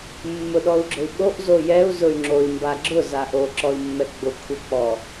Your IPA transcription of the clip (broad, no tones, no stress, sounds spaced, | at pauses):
mː ʊ ɗ ɔ u̯ ɡ͡ǁ ʊ y̯ ɓ o ʔ z o j ɛ u̯ z ʊ y̯ ŋ͡ǁ o i̯ m b a ɡ͡ǁ ʊ z a ʔ o ǁ ɔ i̯ mː ɛ ɡ͡b ʊ kʷʰ ɛ k͡p ɔ